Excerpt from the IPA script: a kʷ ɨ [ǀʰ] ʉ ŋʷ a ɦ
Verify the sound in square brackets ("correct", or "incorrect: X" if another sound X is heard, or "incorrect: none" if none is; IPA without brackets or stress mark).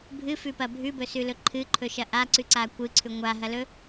correct